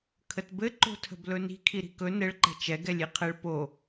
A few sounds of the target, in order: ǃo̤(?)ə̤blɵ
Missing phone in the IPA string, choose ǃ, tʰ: tʰ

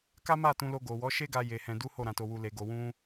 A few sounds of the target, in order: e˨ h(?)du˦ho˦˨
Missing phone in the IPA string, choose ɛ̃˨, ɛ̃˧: ɛ̃˧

